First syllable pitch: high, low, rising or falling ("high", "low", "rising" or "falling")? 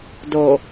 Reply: low